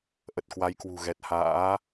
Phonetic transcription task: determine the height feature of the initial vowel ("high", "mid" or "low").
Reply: mid